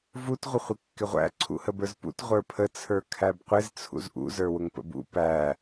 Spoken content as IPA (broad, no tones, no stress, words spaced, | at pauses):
vut ʁʷəχʷɪkːɪʁʷæ̰ ǀʰṵhəbə˞zpṵt ʁʷə˞pʰə t͡sʰə˞kʰæbqʷɪz t͡sʰṵzʔṵ zə˞wʊŋpə̰bṵ pæ